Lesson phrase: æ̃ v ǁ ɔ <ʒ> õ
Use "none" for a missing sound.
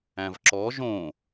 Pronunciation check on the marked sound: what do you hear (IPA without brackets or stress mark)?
ʒ